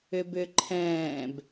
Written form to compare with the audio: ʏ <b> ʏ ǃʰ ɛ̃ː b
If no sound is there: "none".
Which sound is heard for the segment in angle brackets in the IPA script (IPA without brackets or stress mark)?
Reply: b